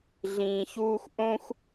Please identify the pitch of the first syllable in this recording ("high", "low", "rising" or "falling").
low